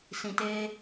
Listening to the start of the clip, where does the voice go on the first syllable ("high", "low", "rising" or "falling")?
low